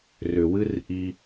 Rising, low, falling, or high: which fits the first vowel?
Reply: low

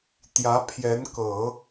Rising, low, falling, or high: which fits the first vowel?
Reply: rising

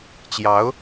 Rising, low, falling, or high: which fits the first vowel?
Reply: rising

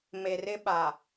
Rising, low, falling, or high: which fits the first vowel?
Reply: low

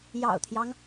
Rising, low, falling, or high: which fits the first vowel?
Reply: low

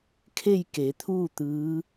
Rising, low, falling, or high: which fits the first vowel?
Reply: falling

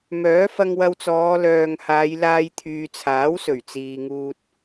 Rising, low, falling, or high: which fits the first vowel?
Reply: rising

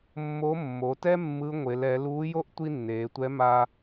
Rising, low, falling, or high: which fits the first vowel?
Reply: rising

